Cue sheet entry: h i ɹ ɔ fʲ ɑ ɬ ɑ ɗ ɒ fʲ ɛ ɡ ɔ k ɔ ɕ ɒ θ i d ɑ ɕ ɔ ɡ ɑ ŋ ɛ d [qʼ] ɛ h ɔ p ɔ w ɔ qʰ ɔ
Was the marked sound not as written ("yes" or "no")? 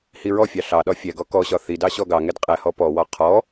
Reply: no